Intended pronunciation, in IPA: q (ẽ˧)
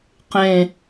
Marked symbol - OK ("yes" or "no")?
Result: no